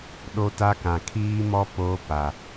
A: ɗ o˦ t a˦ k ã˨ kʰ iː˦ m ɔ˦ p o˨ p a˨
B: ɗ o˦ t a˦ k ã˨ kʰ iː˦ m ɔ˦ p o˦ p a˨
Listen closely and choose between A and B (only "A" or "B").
B